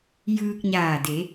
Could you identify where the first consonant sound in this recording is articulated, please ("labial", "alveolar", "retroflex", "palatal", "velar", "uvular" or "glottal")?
palatal